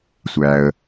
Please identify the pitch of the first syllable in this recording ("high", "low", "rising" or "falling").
low